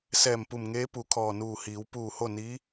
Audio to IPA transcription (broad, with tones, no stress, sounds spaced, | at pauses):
s ɛː˧˩ m p u˧˩ m ŋ eː˧˥ p u˩˧ kʰ ɔː˧˩ n uː˧˩ h iː˩˧ w p uː˧˩ h o˥˨ n iː˧˥